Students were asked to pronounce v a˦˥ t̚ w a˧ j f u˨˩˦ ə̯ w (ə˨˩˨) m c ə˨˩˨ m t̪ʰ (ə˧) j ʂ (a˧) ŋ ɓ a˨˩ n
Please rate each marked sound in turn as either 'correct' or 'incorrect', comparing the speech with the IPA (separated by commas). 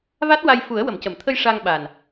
correct, correct, correct